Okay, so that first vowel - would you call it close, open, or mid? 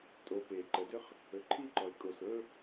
mid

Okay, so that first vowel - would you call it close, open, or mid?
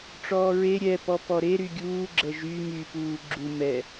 mid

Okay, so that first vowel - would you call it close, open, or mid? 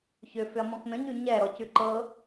close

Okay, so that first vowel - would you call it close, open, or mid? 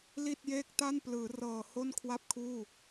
close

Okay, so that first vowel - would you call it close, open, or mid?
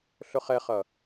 close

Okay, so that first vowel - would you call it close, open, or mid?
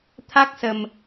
open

